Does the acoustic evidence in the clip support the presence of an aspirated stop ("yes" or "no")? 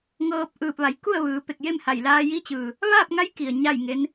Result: no